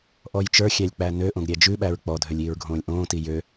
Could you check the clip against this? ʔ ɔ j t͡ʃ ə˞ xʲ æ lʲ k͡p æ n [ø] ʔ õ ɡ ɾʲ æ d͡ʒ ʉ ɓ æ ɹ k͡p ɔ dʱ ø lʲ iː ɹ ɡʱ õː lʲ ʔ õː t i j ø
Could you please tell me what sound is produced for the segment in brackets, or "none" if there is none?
ø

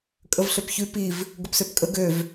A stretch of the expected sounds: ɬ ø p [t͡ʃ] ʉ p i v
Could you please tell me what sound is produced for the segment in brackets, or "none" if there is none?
ç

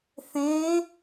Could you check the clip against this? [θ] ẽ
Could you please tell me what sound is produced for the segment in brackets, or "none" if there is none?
θ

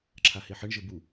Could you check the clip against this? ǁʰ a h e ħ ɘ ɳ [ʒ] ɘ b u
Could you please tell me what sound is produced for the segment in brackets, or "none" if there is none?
ʒ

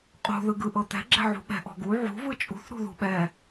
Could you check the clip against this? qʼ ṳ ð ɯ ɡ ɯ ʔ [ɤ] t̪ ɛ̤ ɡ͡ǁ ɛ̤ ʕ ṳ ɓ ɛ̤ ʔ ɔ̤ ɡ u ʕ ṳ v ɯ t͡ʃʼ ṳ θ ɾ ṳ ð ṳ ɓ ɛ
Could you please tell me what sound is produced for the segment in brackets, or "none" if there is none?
ɤ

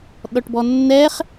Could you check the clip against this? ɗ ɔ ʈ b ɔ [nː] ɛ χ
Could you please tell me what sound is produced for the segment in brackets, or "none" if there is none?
nː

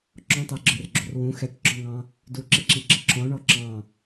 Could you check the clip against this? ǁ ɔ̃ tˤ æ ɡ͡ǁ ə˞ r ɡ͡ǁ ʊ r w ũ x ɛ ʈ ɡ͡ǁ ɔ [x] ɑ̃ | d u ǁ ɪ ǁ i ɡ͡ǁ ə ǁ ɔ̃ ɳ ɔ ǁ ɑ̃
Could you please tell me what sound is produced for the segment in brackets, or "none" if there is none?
ŋ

